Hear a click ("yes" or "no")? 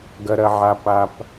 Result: no